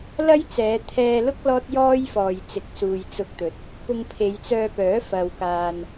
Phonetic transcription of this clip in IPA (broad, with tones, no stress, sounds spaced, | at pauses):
l ɐ˥ j t͡s ɛː˨˧ t̪ʰ ɛː˧ l ʊ˥ k̚ l ɔː˥ t̚ j ɔː˥ j f ɔː˨ j t͡s ɪ˨˥ k̚ s uː˨ j t͡s ʊ˧ k̚ t̪ ɵ˨ t̚ | p ʊ˧ ŋ pʰ e˨˧ j t͡s œː˧ p œː˨˥ f ɐ˨ w k aː˨ n